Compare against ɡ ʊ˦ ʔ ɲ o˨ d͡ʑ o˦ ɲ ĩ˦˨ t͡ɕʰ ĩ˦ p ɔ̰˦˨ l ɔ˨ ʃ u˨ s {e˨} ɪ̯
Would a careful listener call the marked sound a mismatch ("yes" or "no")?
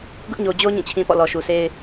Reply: yes